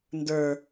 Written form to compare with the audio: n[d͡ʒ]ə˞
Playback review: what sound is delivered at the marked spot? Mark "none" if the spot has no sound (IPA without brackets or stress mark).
d